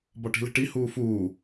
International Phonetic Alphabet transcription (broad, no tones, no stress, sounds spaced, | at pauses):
b ɒ ʈ i̤ l e̤ ʈ i h uː f uː